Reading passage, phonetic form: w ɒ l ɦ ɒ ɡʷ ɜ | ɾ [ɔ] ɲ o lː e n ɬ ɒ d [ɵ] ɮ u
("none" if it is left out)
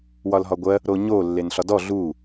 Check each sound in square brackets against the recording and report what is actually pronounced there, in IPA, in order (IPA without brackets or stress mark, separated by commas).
o, ɔ